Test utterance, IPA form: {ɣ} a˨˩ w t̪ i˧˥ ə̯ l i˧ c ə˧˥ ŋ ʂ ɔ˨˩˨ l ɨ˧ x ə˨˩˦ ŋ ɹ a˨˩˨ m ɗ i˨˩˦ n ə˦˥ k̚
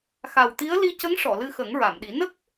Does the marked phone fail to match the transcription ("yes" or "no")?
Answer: yes